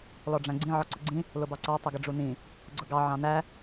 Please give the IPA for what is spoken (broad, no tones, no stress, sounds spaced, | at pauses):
l ɔ ɖ͡ʐ æ̃ ɡ͡ǀ ĩ ʕ ɔ ǀ ʊ ɡ͡ǀ ĩ | l ʊ b ɑ ǀ ɑ tˤ ʌ ɡ ə ɖ͡ʐ u n ĩ | ɡ͡ǀ ʊ ɡ ɑ ʕ ɑ̃ n æ